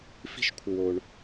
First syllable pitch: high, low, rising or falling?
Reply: high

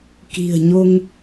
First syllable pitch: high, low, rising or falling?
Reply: low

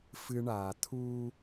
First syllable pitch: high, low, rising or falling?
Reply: high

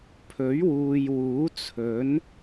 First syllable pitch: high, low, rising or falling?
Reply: rising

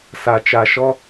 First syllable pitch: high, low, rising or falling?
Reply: low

